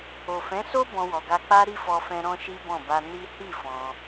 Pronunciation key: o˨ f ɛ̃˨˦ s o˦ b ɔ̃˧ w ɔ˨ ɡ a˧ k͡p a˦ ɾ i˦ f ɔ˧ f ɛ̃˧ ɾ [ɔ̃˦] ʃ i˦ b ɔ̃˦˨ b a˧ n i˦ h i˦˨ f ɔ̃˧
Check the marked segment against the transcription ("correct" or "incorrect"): correct